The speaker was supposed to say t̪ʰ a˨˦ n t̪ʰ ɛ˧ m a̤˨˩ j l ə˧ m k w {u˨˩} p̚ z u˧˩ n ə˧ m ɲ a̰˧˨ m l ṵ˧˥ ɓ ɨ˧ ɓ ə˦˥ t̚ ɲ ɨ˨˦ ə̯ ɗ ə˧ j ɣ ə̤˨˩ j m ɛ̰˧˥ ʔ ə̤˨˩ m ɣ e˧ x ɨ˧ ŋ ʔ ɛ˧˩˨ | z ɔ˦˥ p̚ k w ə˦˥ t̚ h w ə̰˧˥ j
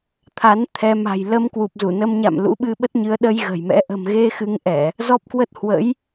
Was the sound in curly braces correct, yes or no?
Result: yes